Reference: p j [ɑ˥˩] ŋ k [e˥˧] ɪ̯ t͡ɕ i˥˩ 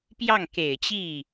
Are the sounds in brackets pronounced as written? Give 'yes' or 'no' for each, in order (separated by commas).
yes, no